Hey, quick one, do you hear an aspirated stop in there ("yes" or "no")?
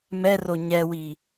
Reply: no